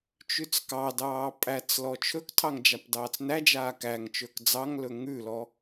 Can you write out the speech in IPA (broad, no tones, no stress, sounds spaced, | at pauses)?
t͡ʃ ʉ t͡s k ɑ d ɑː pʼ æ t͡s l ɔ t͡ʃʰ ɵ k tʰ ɑ ŋ d͡ʒ a p d ɑː t͡s n æ d͡ʒ aː k æ ŋ t͡ʃ ɵː k d͡z ɑ ŋ l ɵ ŋ ʉ l ɔ